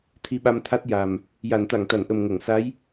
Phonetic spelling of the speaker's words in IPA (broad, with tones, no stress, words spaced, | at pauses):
t̪ʰi˧ɓa˧mt̪ʰa˦˥t̚ ja˨˩m | ja˨˩˨nt̪a˨˩˨ŋt̪a˨˩˨nʔə˨˩m ŋə˨˩˨ŋsa˧˥j